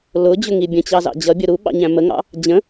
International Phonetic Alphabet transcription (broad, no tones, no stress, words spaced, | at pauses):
lʊd͡ʑʊŋi bʲə̃t͡ɕɑzɑ̰ d͡ʑʌbʲʊ ɾuɓɑ̰ɲæ̃ məŋɑ̰ | d͡ʑə̃